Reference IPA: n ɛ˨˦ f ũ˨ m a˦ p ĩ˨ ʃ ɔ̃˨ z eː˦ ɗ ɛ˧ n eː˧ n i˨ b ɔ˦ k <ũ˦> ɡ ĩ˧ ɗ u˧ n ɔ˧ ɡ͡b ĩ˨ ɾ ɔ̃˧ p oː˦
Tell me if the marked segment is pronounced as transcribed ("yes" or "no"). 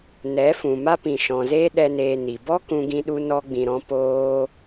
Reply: no